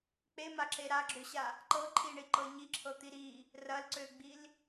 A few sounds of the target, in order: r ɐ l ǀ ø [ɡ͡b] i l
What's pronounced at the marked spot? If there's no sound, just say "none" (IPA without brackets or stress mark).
ɡ͡b